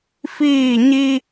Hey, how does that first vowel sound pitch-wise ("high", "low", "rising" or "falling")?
falling